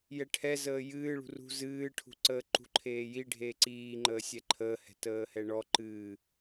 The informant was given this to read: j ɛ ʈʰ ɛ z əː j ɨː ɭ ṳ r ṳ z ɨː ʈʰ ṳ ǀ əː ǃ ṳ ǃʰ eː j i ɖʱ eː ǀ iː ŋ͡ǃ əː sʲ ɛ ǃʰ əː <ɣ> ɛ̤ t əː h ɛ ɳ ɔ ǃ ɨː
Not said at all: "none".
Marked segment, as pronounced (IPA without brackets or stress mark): h